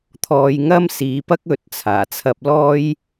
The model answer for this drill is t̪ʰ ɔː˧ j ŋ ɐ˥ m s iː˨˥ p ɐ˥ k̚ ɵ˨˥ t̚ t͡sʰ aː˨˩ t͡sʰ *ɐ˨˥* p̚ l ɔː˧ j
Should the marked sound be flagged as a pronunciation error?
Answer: yes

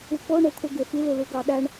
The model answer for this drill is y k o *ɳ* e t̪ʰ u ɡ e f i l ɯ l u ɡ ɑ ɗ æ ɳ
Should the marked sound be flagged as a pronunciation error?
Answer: no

